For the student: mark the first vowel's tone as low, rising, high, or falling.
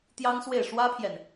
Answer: high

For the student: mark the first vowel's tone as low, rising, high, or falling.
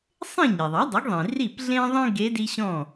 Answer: falling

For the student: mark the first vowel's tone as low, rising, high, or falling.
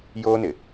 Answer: high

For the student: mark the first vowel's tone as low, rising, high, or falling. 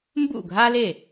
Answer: falling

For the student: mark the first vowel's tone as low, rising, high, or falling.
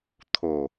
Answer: low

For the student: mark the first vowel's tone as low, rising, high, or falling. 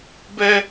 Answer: high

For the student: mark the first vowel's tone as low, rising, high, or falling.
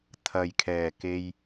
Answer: low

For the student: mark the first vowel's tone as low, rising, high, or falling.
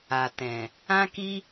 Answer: low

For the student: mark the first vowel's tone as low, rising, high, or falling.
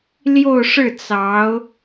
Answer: falling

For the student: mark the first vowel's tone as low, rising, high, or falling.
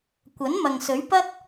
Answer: rising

